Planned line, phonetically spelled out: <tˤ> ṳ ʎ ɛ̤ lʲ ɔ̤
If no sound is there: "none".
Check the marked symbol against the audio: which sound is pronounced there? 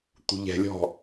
t̪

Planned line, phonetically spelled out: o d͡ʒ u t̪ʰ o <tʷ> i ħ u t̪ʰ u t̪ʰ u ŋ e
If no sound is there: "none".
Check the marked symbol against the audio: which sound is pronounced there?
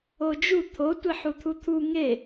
tʷ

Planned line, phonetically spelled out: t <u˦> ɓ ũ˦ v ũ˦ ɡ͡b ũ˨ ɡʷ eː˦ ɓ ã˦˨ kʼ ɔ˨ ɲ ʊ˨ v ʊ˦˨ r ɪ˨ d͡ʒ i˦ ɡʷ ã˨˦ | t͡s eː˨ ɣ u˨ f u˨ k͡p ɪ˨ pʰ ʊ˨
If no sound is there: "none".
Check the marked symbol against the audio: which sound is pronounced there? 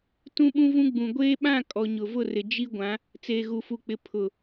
ũ˦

